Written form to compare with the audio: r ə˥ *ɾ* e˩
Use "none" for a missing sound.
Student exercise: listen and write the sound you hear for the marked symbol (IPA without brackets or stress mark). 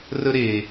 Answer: ɾ